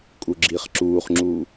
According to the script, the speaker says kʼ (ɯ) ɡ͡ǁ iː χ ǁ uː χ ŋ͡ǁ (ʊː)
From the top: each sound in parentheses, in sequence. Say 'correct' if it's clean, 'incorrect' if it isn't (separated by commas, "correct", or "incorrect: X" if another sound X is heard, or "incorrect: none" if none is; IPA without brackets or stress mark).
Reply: incorrect: u, incorrect: uː